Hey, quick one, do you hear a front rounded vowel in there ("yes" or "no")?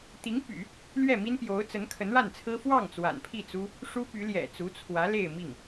yes